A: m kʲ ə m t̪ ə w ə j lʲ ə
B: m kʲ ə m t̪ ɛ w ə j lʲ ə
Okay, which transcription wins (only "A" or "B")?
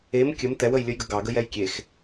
B